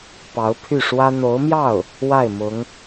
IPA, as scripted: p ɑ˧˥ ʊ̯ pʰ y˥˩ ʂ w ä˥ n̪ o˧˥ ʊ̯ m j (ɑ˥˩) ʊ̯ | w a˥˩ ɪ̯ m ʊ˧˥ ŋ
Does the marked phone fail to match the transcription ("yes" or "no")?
no